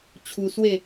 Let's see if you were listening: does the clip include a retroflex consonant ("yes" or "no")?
no